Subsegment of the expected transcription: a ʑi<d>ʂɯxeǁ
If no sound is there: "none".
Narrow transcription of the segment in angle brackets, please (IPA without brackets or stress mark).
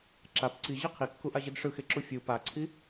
d